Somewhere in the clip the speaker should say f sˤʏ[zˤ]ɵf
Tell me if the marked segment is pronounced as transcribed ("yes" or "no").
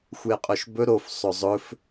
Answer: yes